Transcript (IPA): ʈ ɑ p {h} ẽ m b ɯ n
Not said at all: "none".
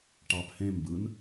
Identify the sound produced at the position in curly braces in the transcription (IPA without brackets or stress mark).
h